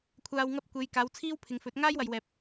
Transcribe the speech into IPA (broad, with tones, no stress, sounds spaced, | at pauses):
kʷʰ aː˧ w ŋ ɐ˥ p̚ kʷ e˨˧ j k aː˨˧ w t͡sʰ iː˥ w pʰ ɪ˨ ŋ f ɵ˨˥ t̚ ŋ aː˥ j w ɐ˨ j w ɛː˨ p̚